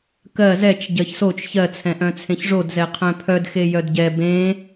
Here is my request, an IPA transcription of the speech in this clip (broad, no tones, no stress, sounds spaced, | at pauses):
k ɜ z ɛ t͡ʃ ɟ ɜ ç s o t͡ʃ ç ɜ t͡sʰ ɛ̃ ʔ œ̃ t͡sʰ ẽ ç ʐ o d z ɛ qʰ œ̃ pʰ œ d x e j œ d ɟ ɛ b ẽ